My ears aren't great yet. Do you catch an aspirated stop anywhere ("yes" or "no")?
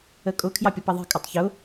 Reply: yes